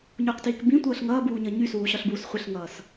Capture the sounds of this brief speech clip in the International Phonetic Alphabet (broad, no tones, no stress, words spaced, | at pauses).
ɲuqtiːk bĩtʷʌːɬ ŋʌːbuːɲʌ ɲysuːɕɒɬbuːs χʷɘɬŋʌːs